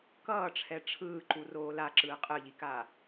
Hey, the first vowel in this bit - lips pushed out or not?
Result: no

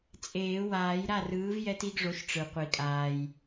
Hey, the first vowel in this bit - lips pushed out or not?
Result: no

